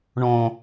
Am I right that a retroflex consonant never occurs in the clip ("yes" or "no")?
no